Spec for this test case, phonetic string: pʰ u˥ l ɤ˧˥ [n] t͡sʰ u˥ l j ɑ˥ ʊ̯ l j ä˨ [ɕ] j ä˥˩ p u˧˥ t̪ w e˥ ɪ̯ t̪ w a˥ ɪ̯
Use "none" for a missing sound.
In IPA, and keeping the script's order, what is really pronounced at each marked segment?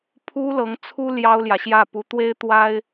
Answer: ŋ, ɕ

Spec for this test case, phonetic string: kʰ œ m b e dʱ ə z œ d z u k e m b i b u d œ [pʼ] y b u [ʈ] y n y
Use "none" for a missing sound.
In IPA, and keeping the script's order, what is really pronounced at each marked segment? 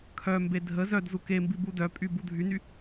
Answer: pʼ, dʱ

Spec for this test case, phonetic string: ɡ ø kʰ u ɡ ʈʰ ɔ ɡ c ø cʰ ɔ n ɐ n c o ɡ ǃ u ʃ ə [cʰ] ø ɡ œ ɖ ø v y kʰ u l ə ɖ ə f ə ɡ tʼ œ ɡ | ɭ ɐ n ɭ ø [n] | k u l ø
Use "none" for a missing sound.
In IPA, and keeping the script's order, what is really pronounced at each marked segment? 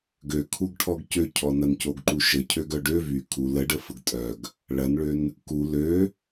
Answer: cʰ, n

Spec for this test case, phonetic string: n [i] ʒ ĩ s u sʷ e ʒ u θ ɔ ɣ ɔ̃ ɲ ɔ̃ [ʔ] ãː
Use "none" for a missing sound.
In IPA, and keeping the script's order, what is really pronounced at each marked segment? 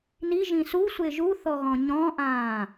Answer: i, ʔ

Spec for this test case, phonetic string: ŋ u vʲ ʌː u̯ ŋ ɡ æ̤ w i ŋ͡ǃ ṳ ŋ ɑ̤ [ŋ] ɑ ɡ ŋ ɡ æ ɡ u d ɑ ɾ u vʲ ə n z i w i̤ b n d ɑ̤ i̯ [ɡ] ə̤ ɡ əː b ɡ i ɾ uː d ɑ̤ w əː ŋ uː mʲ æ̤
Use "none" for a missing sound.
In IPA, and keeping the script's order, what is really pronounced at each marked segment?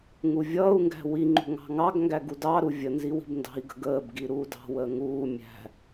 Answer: ŋ, ɡ

